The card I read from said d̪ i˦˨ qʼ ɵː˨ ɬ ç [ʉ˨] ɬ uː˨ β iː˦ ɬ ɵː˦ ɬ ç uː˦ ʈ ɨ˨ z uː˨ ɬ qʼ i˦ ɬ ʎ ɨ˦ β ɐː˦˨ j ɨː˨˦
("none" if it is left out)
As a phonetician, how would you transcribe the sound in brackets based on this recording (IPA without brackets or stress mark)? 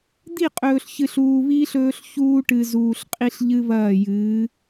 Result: ɨ˨